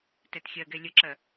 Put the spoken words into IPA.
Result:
t ɛ t xʲ ɜ ɡ ɛ lʲ ə ǁ ɜ

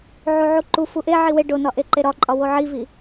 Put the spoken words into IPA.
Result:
ʕ u ʕ u ǃ u f u ʔ e ʕ i w e ɖ o n ɒ ʔ e ǃ e ɾ ɒ ǃʼ ɒ w o ʕ i v i

